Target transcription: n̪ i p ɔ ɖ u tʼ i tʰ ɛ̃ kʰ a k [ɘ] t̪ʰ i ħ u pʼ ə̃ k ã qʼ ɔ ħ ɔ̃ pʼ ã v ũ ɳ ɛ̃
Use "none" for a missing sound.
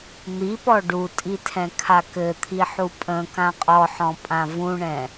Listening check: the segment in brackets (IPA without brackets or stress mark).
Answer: ɘ